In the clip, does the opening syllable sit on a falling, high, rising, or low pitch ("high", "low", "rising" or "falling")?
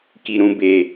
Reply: low